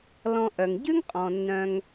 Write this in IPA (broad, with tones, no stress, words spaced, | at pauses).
lɔ̃˧ ʔœ˩ŋɟʉ˥ŋqʼɔ̃˩ nːœ̃˧ŋ